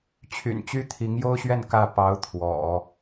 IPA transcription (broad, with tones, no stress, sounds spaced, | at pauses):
t͡ɕʰ y̰˨˩ n t͡ɕ y˥ t̪ʰ i˧˥ ŋ j o˥ ʊ̯ ɕ ɥ ɛ˥˩ n k ä˥ p ɑ˧˥ ʊ̯ t̪ʰ w ɔ̰˨˩˦